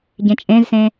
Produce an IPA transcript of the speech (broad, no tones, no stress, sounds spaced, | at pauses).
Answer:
ɟ ẽ t͡ʃʼ ẽ z s ẽ